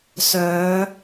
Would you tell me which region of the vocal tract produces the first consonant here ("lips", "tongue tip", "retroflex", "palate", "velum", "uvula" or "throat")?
tongue tip